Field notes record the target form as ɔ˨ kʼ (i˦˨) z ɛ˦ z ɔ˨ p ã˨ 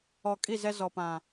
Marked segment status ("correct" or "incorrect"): correct